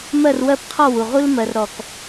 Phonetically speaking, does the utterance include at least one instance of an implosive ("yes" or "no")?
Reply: no